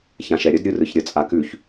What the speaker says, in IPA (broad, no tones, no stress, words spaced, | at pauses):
çãʃɛɾʲəd ɾʲɯrɯçɾʲə t͡sʼakʉç